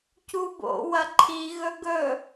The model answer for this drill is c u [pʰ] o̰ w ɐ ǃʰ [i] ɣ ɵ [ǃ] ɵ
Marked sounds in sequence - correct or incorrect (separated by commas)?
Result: incorrect, correct, incorrect